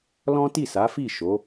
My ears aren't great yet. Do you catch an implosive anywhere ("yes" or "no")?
no